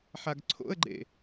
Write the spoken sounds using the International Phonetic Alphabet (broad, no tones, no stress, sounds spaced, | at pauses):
ħ a ɡ ǀʰ o̰ ə̯ ɡ͡ǃ ḛ